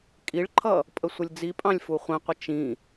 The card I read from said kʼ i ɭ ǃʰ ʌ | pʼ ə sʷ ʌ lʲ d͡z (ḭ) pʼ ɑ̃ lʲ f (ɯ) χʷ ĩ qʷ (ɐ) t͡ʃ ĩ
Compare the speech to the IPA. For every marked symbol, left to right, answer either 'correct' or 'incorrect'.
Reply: incorrect: i, incorrect: u, incorrect: ə

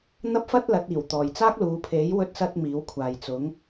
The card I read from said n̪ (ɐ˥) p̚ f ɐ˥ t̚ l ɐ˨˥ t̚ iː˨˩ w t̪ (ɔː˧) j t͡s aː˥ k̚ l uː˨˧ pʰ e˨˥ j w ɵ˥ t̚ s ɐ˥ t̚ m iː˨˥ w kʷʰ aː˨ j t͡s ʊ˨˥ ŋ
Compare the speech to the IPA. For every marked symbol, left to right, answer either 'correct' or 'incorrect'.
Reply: correct, incorrect: ɔː˨

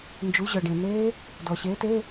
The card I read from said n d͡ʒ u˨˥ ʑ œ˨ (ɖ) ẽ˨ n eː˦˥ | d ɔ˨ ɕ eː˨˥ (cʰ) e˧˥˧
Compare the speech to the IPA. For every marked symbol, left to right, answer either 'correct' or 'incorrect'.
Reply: correct, incorrect: t

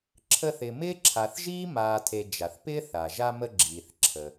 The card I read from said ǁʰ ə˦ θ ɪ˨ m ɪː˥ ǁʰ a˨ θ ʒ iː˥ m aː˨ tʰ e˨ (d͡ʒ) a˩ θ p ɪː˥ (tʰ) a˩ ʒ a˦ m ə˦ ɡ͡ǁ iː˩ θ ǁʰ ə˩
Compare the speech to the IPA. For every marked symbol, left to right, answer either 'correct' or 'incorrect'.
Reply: correct, incorrect: θ

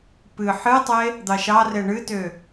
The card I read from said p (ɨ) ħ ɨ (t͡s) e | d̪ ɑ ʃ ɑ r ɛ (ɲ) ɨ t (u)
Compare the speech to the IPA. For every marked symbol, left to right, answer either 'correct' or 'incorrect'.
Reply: correct, incorrect: tˤ, incorrect: ɳ, incorrect: ø

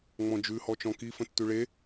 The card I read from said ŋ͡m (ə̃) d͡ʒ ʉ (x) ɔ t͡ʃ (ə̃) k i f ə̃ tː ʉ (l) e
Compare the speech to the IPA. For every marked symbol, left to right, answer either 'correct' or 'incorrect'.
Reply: incorrect: ɔ̃, incorrect: h, incorrect: ɔ̃, incorrect: ɭ

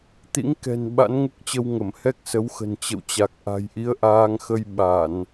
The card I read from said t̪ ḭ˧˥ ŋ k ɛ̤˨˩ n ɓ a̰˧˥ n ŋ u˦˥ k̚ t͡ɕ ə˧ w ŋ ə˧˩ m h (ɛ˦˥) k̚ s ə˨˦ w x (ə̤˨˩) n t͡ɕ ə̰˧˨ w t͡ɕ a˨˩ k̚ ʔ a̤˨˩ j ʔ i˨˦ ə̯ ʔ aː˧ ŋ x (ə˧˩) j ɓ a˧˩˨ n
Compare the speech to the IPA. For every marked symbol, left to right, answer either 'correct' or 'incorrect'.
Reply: correct, correct, incorrect: ə˧

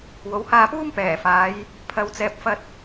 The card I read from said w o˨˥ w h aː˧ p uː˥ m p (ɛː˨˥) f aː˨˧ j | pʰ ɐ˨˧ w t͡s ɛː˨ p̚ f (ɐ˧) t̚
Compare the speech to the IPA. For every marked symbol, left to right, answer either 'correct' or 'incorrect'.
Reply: incorrect: ɛː˨˩, correct

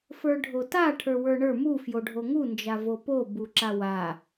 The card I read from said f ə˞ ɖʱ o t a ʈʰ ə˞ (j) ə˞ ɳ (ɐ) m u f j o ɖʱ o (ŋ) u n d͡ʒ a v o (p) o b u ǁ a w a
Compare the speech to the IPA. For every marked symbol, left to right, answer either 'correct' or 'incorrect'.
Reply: incorrect: w, incorrect: ə˞, correct, correct

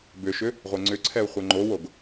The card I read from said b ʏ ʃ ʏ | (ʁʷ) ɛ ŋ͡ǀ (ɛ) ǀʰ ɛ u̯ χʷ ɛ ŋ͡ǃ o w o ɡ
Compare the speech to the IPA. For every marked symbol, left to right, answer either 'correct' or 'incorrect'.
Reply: correct, incorrect: ʏ

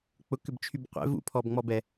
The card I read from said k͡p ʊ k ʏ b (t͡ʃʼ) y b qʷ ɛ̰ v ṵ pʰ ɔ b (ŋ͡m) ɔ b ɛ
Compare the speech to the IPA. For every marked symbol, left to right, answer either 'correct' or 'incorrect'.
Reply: incorrect: t͡ʃʰ, correct

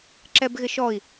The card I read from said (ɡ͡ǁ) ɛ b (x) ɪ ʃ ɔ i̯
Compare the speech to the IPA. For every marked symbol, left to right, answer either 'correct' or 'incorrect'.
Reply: incorrect: ǁ, incorrect: ɣ

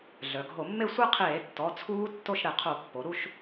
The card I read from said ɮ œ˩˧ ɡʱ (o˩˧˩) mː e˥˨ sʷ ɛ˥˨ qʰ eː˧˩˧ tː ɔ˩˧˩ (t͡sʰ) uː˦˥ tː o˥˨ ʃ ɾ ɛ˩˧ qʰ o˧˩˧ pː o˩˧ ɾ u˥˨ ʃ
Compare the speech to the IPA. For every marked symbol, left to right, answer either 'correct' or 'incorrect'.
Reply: incorrect: o˧˩˧, correct

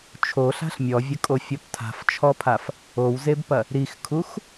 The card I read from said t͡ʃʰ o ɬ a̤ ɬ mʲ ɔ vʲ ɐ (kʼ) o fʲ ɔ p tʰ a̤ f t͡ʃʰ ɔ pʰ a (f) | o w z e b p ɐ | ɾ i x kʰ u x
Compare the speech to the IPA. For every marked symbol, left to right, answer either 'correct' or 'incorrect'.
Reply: correct, correct

